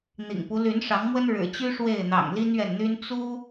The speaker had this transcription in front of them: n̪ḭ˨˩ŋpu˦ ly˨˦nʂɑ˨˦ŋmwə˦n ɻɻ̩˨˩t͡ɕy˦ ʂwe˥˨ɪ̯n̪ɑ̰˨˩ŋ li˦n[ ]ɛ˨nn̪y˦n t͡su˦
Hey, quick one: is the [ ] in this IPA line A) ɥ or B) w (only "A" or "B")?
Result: A